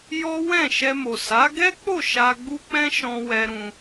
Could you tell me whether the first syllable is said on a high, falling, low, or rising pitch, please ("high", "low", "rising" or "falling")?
high